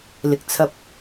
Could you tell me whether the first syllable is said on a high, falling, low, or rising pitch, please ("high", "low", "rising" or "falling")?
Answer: low